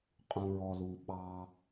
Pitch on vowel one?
low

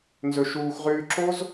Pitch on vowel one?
low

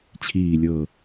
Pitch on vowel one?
low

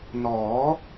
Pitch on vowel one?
rising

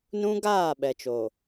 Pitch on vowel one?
high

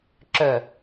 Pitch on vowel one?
low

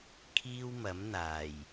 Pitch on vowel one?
high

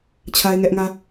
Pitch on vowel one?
high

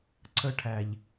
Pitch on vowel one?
high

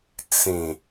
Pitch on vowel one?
low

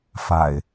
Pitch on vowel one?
low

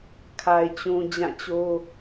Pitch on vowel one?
low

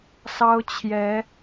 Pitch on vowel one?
high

